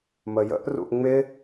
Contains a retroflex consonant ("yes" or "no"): no